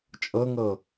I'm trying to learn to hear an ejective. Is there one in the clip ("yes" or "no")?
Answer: yes